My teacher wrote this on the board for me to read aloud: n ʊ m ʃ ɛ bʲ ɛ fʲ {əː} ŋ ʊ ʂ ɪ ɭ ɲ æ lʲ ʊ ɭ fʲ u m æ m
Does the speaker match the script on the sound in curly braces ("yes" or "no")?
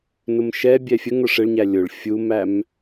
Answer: no